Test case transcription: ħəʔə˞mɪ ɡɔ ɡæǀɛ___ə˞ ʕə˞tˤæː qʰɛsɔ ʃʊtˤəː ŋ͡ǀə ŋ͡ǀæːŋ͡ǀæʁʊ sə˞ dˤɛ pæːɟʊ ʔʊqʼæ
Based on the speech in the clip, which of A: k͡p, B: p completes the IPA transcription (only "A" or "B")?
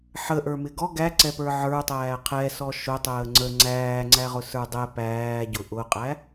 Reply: B